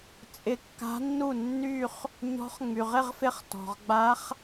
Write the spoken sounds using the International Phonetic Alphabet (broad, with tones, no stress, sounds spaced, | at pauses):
t͡sʼ ɪ˧˥ kː a̤˧˥ nː u˥˩ nː y˥˧ χ | ɲ ɔ̤˧˥ χ ŋ͡m y˩ ʁ ɪ˥˧ ʁ f ɪ˧˥ χ t ɔ̤˩ ʁ ɡ͡b a˧˥ χ